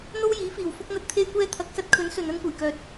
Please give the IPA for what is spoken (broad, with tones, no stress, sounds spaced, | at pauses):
n̪ o˥ w j iː˨˥ f iː˨˩ w f ʊ˥ k̚ n̪ ɐ˥ t̚ t̪ʰ e˥ j kʷ ɛː˧ t̪ʰ ɐ˨˥ k̚ s ɐ˨˥ t̚ kʰ ɵ˨˥ n s ɵ˧ n ɐ˥ n kʷ ɐ˨˩ j k œː˨ t̚